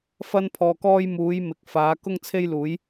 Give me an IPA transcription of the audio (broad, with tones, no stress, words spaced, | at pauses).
fɐ˧npʰɔː˨kɔː˧j muː˨˧jmɪ˨˥k̚ faː˨˧ kʊ˧ŋt͡sʰe˧jluː˨˧j